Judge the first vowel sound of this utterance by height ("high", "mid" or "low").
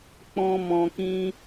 mid